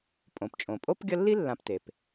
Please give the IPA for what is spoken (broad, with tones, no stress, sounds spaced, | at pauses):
pʼ õ˩ p t͡ʃʼ õ˩ pʼ o˥ p ɡʲ ʌ˦ lː i˥ lː ã˨ p t e˩ p